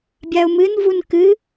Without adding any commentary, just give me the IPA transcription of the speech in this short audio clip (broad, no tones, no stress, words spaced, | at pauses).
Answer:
bʲaʊ̯mɨnvun kɨ